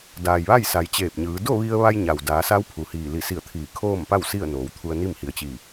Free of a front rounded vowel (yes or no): yes